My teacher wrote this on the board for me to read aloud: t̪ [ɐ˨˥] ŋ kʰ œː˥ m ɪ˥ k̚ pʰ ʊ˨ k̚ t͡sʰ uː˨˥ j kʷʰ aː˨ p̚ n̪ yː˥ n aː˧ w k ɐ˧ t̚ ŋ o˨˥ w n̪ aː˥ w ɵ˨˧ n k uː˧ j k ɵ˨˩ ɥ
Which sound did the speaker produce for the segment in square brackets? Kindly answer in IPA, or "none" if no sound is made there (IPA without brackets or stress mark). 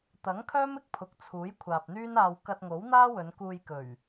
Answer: ɐ˨˥